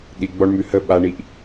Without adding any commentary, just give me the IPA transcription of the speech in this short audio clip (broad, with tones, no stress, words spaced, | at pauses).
ɗi˨ ɡ͡bɔ˧ɳmʉ˨hə˦˨ɓa˧ ɳi˧ʔ